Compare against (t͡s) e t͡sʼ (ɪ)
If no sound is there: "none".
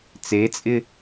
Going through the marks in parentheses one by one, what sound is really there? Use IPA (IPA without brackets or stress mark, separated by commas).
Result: t͡s, ɪ